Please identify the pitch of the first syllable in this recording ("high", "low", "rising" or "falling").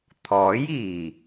rising